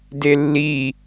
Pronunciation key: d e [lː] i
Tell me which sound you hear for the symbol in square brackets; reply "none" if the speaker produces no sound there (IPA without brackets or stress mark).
lː